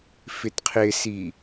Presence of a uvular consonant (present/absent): present